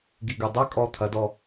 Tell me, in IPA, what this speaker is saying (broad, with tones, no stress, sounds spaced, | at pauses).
ɡ i˨ ɡ ɨ˨ dˤ ɛ˦ kʼ ɔ˧ t̪ʰ ɐ˨˦ d ɔ˧